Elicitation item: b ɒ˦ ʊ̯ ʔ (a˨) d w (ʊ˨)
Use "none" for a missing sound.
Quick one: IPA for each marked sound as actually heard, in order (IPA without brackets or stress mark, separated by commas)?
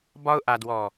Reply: a˨, ɔ˨